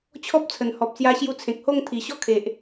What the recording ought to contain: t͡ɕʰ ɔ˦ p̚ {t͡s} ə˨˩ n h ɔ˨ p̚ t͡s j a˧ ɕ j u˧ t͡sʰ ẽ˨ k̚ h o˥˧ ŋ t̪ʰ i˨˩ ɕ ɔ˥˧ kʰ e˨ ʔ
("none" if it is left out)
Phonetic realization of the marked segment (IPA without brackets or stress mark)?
t͡sʰ